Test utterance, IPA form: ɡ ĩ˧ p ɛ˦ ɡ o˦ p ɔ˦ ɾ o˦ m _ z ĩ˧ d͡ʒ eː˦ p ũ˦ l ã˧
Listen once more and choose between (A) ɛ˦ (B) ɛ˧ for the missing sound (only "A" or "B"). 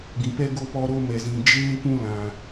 B